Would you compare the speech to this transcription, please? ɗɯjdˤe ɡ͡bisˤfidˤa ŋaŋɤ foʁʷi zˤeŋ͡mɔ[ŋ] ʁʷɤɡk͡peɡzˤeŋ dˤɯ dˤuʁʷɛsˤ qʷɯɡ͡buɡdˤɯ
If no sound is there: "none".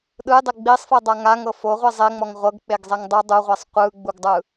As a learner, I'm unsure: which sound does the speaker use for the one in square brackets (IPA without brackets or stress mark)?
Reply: ŋ